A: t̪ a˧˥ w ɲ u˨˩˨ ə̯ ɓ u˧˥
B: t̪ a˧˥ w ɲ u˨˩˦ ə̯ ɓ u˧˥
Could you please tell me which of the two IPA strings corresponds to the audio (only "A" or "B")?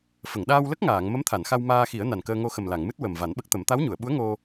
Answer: A